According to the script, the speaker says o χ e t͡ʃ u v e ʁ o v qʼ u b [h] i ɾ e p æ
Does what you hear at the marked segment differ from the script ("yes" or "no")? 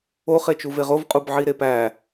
yes